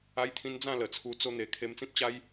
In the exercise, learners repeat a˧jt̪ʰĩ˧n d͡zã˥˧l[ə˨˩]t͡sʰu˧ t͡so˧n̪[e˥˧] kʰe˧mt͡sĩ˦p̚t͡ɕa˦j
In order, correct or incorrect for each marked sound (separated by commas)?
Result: correct, incorrect